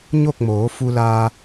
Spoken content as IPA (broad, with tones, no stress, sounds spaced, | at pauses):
ɲ o˥˨ k̚ m oː˩˧ f u˧ l aː˧